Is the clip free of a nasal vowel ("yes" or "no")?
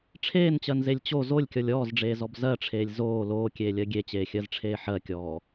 yes